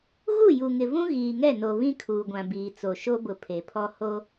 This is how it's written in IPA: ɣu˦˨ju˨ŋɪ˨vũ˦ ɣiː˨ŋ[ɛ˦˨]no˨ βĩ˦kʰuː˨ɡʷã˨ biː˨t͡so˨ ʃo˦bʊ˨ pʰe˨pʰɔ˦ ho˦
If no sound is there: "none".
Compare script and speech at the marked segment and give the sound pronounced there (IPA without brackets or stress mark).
ɛ˦˨